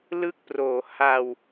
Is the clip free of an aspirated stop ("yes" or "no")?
yes